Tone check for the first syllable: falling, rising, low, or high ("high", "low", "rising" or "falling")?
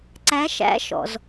rising